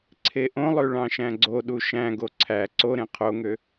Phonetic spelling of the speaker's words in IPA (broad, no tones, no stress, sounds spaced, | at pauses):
ǀʰ e ʔ õ lˠ ø ɭ ɑ̃ ʃ æ̃ ɡ͡ǀ o ɗ u ʃ æ̃ ɡ o ǀʰ æ ǀ o ɾ ẽ qʰ o ŋ ø